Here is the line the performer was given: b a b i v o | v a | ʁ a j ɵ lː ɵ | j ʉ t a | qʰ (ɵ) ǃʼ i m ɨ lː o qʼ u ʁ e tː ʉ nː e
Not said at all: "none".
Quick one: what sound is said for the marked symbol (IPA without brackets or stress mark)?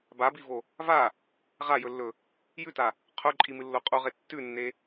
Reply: ɵ